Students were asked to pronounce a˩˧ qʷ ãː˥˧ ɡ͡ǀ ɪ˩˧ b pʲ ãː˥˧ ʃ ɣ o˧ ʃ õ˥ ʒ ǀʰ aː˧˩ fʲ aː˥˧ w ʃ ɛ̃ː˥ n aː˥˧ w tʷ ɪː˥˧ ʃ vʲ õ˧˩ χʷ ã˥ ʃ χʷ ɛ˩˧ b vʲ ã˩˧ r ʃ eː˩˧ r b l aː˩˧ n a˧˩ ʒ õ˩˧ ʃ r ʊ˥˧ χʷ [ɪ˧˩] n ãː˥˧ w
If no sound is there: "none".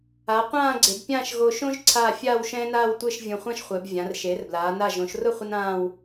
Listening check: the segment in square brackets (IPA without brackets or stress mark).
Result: ɪ˥